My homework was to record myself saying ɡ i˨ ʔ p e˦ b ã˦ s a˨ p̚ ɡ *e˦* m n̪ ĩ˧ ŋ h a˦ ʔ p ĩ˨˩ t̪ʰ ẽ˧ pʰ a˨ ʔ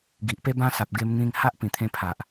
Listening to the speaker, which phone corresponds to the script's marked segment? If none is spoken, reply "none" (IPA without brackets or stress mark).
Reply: e˧